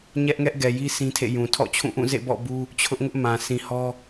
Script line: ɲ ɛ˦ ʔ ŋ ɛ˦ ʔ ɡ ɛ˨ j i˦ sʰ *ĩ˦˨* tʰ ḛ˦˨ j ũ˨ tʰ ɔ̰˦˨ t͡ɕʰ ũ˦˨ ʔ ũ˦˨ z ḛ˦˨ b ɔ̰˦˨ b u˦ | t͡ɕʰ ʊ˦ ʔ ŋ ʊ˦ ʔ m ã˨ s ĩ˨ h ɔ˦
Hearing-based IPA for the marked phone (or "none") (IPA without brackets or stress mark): ĩ˦